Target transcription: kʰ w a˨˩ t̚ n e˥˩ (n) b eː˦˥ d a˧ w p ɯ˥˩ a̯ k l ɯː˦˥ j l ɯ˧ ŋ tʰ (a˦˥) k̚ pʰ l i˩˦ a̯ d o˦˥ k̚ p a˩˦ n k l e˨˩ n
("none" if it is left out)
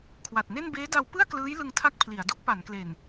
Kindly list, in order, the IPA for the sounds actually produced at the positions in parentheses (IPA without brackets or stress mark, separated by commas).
n, a˦˥